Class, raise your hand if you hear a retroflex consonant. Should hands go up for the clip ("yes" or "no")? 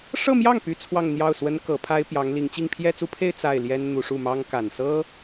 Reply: yes